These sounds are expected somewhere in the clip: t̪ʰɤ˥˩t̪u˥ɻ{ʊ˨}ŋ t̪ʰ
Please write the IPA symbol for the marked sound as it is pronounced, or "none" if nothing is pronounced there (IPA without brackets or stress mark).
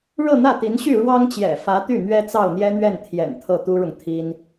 ʊ˨